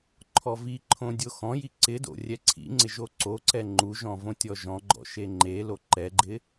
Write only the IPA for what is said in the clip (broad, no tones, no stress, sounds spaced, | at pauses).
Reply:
ǃʰ ɔ v i ǃʰ õ dʲ o x ɔ̃ j i ǀ ɪ d o̰ rʲ ɛ ǀʰ ḭ ŋ͡ǀ ɪ ʒ o ǀ o ǀ ɛ ŋ͡ǃ u ʒ ɔ̃ v õ tʲ ɔ ʒ ɔ̃ ɡ͡ǃ ɔ̰ ʃ e ŋ͡ǃ e l o ǃ ɛ ɡ͡ǃ ɪ